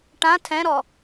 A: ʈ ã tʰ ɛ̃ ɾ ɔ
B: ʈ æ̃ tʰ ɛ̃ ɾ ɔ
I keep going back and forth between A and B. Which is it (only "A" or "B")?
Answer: A